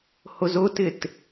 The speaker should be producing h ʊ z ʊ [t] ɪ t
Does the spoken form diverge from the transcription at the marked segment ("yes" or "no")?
no